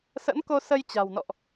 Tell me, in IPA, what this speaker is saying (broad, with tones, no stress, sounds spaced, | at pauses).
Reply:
s ə̰˧˥ n k o˧ s ə˧ j t͡ɕ a̤˨˩ w n ɔ̰˧˨ ʔ